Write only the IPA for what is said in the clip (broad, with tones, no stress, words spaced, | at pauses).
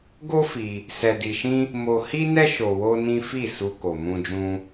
ɡo˦ fi˧ | sɛ˧di˧ʃĩ˦ | mo˧hi˦nɛ˦ ʃo˧ wo˦nĩ˦ fi˦˨su˧ ko˨mũ˧d͡ʒũ˧